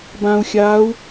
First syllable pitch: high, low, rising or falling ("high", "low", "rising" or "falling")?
low